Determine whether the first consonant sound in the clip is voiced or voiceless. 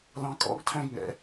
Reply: voiced